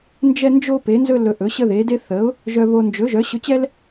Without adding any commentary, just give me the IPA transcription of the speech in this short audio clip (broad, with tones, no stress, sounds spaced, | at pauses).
n d͡ʒ ɛ˥ n d͡ʒ o˥ p e˨˥ n z ɵ˥ l ɵ˧ ʔ ɵ˨˥ ɕ ə˥ ð e˨˥ d e˥ θ ə˨˥ ʊ̯ | ʒ œ˧ β o˧ n d͡ʒ ɵ˨˥ ʒ œ˨˥ ɕ ɵ˧ t͡ɕ ɛ˥ l